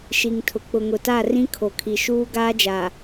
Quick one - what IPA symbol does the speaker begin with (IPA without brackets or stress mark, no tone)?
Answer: ʃ